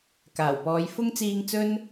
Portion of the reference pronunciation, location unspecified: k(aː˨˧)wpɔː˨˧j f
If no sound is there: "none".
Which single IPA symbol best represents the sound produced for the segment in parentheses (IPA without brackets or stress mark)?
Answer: aː˨˩